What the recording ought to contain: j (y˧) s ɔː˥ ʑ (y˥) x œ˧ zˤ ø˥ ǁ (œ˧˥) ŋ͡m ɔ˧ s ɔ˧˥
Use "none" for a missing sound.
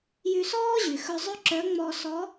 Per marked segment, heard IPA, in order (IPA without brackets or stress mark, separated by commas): y˧, y˩, œ˧˥